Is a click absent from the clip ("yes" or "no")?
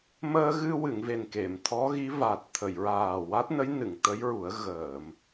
yes